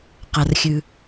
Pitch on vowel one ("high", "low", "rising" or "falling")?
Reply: low